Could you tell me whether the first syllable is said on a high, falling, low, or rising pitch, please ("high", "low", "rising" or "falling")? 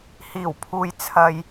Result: low